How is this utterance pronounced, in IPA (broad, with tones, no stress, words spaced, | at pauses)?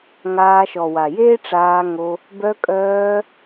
ŋaː˧ʃɔ˨wa˨ jeː˦ʈ͡ʂaː˧ŋo˧ | bœ˧kʼœː˧